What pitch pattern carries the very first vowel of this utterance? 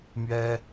high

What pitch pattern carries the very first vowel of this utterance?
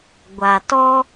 low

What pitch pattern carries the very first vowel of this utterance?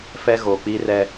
high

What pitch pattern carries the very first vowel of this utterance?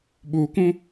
low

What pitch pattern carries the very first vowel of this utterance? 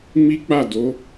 high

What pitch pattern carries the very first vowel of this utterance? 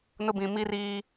high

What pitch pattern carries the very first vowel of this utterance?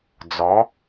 rising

